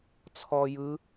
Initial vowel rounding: rounded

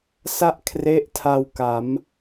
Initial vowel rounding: unrounded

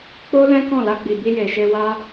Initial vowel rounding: rounded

